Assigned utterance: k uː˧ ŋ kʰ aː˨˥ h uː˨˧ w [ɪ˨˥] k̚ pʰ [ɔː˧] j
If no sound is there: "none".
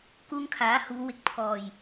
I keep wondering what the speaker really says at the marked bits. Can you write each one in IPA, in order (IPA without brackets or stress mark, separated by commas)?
ɪ˨, ɔː˨